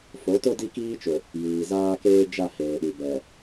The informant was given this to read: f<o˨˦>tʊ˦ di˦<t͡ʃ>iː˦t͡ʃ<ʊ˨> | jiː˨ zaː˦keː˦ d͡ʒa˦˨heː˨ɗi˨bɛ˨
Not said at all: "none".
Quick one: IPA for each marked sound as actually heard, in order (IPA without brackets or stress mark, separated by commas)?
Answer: o˨˦, k, ʊ˨